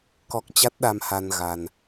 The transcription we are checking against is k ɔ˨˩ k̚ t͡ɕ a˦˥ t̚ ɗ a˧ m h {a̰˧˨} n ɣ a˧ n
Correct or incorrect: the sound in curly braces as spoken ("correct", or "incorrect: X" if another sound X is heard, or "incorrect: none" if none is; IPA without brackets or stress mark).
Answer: incorrect: a˧